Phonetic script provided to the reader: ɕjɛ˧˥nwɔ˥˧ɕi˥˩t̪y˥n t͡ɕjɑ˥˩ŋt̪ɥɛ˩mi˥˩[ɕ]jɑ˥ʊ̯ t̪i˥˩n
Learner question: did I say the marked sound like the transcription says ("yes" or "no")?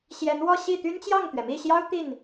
yes